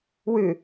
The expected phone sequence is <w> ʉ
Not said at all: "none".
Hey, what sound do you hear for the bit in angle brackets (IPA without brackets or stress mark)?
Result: w